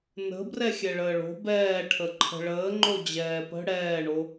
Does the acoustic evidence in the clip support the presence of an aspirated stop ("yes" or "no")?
yes